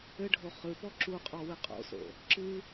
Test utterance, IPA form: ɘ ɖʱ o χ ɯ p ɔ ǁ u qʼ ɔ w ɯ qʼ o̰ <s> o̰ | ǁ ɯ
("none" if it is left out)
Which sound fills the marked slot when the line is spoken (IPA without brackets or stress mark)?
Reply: s